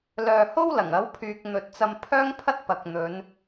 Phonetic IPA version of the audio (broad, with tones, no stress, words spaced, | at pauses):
lœː˨ho˥w lɐ˨˩ŋ ɐ˨˥wpʰyː˨k̚n̪ɵ˨t̚t͡sɐ˧m pʰœː˥ŋpʰɐ˥t̚ pɐ˨k̚n̪ɵ˨˧n